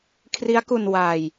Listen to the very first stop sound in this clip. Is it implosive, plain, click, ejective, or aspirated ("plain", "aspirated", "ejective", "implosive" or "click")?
aspirated